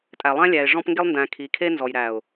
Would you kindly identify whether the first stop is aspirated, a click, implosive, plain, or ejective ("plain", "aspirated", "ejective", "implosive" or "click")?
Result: ejective